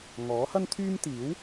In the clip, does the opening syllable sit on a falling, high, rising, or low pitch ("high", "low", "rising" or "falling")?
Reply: rising